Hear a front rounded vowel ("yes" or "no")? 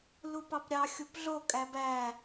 no